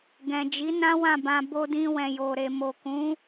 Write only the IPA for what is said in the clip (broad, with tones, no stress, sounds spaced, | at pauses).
ɡ ɛ̃˨ d͡ʒ i˨˦ n ã˦ w ã˦˨ b ã˧ b o˧ d ĩ˧ w ɛ̃˨ j o˨ ɾ e˨ m o˨ k ũ˨˦